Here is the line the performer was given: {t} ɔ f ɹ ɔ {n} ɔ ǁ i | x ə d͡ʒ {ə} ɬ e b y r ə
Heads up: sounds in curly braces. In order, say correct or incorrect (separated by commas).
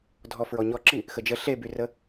incorrect, incorrect, correct